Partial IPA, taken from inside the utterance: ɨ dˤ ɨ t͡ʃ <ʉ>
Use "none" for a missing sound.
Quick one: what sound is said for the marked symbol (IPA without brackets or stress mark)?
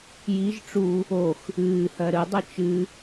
ɨ